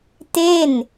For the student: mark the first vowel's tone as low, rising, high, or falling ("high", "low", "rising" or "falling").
falling